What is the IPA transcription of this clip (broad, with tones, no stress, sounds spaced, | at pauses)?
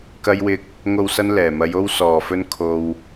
k ɐ˧ j w ɪ˧ k̚ | ŋ o˨ w s ɐ˧ n l ɛː˨˩ m ɐ˨˧ j o˧ w s ɔː˨˩ f ɵ˧ n kʰ o˧ w